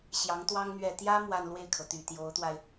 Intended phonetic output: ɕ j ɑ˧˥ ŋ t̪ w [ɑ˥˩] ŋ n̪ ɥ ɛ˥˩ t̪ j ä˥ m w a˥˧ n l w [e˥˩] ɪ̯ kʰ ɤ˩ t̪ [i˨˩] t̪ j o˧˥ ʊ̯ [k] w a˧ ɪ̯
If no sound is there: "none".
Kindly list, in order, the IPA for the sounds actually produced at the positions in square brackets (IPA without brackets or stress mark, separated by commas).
ɑ˥, e˥˩, y˨˩, t̪